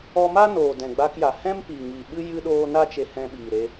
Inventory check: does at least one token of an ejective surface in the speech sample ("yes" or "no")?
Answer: no